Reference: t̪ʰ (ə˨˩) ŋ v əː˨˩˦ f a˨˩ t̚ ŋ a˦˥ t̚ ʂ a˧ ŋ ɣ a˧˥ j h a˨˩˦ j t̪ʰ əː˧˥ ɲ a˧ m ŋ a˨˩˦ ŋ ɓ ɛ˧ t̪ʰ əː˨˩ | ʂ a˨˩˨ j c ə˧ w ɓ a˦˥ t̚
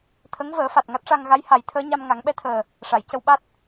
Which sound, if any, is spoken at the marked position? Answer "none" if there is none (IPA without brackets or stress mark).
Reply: ə˧˥